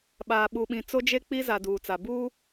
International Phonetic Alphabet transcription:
ɓaː˨ɓu˨ɓĩ˨ t͡so˦d͡ʒe˦k͡pi˦za˨ duː˨t͡sa˨ buː˦

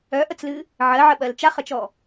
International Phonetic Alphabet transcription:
œʔət͡slɨ | ʕɜʕəɓɜl t͡ʃaχət͡ʃɔ

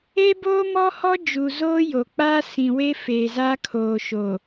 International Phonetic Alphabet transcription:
e˦boː˦mɔ˦hɔ˦ d͡ʒuː˨zoː˦ jo˨ k͡pa˦sĩ˨we˦ feː˨za˦kʰoː˨ ʃo˨

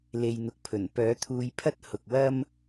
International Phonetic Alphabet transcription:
le˨jn̪ʊ˨k̚pʰɵ˨˩n pœː˨˥t̪ʰuː˧jpʰɐ˥t̚ hʊ˨k̚wɐ˥m

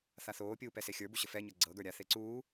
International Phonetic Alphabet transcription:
θaθoːpʲuː pɛsexʲə˞bu ɕəfɛɲɤ ɡ͡ǀɤɡə˞ ɾʲaθe ǀuː

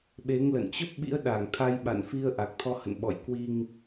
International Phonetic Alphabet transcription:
ɓe˨˦ŋlə̰˧˨n t͡ɕə˦˥p̚ɓḭ˧˥ə̯ɗa˧˩ŋ t̪ʰa˧jɓa̰˧˨nfi˧ə̯ ʔa˨˩k̚t̪ʰɔ˧hə̰˧˨n ɓɔ̰˧˨jkwi˧ŋ

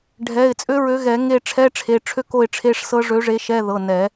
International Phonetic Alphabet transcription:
ɖʱɛ˩˧˩ɪ̯ t͡sʼø˦˥ɹø˨˥ɣɛ˨˩˦ ŋe˦˨ʈ͡ʂʰɛ˧˥˧ ʈ͡ʂʰe˩˧˩ʈ͡ʂʰø˦˥ko˦˨ɪ̯ ʈ͡ʂʰe˧˥˧ʂsɤ˦˥ ʐø˨˥ʐe˨˥ ʃɛ˧˥˧ðɤ˩˧˩ nɛ˨˩˦

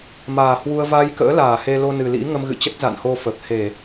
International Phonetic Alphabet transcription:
maː˨˩hwu˧ə̯ va˧jkə̰ː˧˥ laː˧˩he˧lo˧nɨ˨˩ lḭ˧˥ŋə˧mɣɨ̰˧˨t͡ɕə˦˥t̚ za̰˧˨nho˧ fə˨˩p̚ he˧˩˨

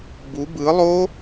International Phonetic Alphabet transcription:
bu bɯ lˠo

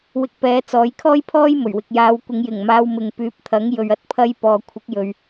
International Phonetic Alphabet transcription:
wɪ˧k̚ pɛː˨˧ t͡sɔː˨˥jkʰɔː˥jpʰɔː˥j mɵ˨˩ɥwɪ˨k̚jaː˨˧wkʷɪ˨˧ŋ jɪ˨˩ŋ maː˧wmɪ˨ŋ pyː˨˥p̚t̪ʰɐ˨˥ŋ jɵ˨ɥɐ˥t̚pʰɐ˧j pɔː˨kʷʰɪ˨˥k̚jɵ˨ɥ

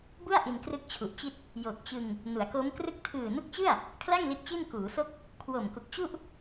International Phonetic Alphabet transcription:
bu˥˩a̯ ʔi˧nkrɯ˥˩k̚t͡ɕʰu˨˩ʔt͡ɕi˥˩t̚ | jo˨˩k̚ t͡ɕɯ˧ŋ | nu˩˦a̯ko˦˥mkrɯ˥˩k̚ tʰɯː˨˩nu˦˥k̚t͡ɕɯ˥˩a̯ | kʰla˥˩ŋ li˦˥t̚t͡ɕi˥˩n kuː˩˦so˥˩k̚ | kʰwo˨˩mku˨˩k̚ t͡ɕu˥˩ʔ

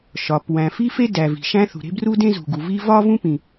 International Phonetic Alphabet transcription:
ʃɒ˩ pwæ̃˩fi˥fe˥ dæ˩vi̤˩ʃæ̃˥ θṳ˩ɾe̤˥bru˥dẽ˥ zṳ˩ɡu˩ vi˥ vɒ˥vũ˥pĩ˩

